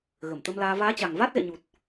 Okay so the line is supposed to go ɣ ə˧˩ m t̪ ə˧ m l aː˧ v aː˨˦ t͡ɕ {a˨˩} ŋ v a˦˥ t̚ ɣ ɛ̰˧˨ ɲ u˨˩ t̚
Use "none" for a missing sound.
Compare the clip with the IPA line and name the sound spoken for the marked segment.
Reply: a˨˩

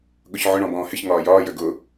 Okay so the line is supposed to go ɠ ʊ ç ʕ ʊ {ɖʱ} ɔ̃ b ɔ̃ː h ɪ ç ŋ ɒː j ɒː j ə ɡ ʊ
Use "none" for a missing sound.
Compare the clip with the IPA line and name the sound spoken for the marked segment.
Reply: ɳ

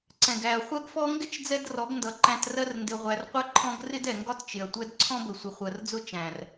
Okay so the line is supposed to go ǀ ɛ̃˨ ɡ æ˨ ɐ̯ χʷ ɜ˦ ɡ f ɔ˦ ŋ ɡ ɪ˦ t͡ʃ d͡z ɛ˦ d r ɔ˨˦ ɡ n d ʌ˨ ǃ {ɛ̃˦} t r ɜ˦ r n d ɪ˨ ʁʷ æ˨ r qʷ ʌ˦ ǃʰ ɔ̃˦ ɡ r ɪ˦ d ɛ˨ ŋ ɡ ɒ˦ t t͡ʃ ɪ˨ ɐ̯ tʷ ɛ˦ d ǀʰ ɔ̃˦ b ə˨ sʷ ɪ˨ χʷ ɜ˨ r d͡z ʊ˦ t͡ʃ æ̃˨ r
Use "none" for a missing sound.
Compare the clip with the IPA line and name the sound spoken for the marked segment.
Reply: æ̃˦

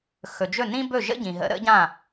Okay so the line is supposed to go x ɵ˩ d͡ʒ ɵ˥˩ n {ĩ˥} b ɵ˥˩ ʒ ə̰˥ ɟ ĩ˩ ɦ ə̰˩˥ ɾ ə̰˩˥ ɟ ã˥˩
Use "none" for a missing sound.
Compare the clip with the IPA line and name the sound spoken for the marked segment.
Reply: ĩ˥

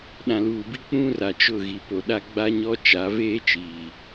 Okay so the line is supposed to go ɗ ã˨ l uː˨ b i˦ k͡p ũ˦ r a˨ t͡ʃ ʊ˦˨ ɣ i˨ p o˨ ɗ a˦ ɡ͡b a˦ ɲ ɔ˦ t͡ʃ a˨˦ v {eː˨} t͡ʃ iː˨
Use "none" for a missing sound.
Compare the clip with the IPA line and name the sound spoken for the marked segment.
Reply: eː˦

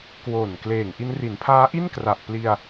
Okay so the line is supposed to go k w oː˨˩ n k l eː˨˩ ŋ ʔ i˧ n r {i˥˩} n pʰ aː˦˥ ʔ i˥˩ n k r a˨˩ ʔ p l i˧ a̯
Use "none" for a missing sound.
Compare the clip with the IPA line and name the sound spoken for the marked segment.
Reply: i˩˦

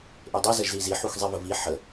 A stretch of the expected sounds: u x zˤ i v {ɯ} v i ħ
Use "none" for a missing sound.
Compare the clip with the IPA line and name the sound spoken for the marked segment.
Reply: ə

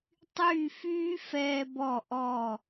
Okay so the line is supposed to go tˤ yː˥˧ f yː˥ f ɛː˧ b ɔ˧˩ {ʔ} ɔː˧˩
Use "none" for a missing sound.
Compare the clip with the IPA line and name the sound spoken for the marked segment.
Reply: ʔ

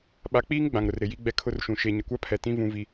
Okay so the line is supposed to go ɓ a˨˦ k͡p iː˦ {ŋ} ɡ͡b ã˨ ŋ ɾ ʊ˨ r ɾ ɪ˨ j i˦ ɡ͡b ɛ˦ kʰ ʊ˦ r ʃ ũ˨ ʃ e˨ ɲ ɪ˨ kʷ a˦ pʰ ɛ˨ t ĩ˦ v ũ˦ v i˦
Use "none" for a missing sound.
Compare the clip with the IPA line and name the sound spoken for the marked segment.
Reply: ŋ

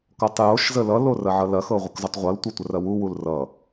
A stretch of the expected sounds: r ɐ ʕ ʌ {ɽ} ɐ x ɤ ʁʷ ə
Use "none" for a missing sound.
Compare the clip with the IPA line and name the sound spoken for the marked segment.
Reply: l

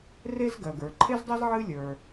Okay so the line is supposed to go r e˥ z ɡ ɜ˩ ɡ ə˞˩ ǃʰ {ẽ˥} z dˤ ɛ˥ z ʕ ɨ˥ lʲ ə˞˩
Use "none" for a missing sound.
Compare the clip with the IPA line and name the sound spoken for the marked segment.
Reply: e˥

